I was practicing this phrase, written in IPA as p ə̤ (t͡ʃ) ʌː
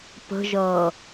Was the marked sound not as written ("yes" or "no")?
yes